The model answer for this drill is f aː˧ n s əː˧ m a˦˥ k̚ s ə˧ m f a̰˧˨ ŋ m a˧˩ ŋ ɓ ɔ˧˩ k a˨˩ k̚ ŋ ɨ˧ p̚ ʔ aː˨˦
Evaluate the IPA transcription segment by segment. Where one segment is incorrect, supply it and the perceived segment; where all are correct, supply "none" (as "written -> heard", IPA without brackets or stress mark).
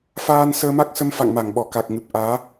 ɨ˧ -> ɨ˨˩